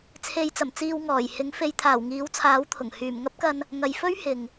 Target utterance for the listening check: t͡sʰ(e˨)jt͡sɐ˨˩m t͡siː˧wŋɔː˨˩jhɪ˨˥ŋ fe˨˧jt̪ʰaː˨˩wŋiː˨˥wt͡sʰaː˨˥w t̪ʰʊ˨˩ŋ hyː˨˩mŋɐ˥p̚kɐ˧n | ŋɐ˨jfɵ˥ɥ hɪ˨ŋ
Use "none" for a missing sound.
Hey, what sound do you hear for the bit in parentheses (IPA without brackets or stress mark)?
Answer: e˨